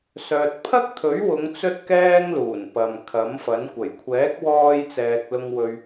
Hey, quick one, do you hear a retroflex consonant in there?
no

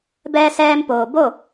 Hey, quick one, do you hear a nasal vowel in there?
no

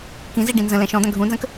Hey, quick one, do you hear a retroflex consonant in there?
yes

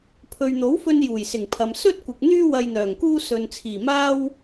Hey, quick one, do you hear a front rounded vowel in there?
yes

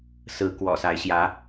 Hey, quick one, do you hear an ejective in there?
no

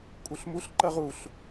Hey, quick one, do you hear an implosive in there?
no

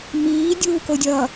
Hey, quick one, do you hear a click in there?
no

